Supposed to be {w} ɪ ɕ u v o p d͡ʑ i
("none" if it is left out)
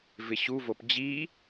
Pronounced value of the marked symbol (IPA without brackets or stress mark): v